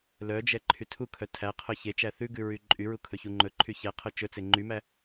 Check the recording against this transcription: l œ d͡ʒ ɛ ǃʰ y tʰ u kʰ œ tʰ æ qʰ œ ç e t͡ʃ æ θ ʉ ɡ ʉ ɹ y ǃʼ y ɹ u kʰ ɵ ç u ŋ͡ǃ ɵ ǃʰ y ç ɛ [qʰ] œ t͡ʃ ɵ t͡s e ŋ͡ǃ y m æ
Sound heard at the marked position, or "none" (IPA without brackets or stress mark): qʰ